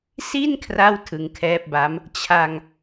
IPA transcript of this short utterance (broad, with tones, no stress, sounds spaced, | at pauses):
s i˥˩ n kʰ r a˥˩ w tʰ ɯ˧ ŋ kʰ ɛː˦˥ p̚ b a˦˥ m | t͡ɕʰ a˧ ŋ